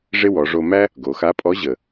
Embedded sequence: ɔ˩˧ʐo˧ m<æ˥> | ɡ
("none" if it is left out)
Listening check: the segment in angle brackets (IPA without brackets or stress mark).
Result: æ˥